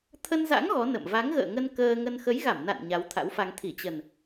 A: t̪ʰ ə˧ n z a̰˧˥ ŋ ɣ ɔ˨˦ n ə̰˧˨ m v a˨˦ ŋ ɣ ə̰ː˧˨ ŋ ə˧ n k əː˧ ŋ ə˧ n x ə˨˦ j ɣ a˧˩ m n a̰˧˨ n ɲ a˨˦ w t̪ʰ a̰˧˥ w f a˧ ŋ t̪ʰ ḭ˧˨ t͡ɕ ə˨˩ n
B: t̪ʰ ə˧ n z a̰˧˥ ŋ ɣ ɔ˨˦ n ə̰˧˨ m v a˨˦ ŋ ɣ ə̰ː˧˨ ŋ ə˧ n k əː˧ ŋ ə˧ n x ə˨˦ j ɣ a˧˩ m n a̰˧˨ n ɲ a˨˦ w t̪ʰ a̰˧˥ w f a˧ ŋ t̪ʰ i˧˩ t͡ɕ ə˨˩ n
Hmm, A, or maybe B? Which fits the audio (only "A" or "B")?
B